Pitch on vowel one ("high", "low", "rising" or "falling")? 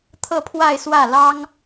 falling